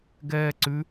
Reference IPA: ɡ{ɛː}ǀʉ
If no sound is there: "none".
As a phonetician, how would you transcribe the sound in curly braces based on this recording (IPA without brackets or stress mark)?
ɛː